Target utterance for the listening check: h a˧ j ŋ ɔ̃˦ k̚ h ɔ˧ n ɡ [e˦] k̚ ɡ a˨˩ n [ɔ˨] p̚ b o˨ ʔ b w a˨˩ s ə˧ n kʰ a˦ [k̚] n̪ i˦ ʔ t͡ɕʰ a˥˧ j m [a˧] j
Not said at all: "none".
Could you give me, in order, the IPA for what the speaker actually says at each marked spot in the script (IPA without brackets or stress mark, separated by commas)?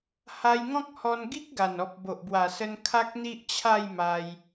i˦, ɔ˨, k̚, a˧